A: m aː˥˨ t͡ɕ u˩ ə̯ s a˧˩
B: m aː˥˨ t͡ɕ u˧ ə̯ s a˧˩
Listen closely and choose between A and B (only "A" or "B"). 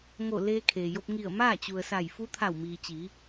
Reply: A